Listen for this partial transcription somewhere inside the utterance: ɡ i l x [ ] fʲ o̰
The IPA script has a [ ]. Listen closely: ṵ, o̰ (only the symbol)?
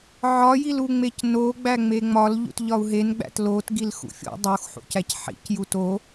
ṵ